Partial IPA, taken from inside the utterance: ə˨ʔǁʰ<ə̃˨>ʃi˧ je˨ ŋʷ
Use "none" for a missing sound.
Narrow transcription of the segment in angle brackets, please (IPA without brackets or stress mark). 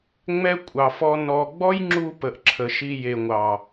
ə˨